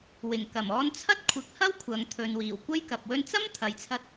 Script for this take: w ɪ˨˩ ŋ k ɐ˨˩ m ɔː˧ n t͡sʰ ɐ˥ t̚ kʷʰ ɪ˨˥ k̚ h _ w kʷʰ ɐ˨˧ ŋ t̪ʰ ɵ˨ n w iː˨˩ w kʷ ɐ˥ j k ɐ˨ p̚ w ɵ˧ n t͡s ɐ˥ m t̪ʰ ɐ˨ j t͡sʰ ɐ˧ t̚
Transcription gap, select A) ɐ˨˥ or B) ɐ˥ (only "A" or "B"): B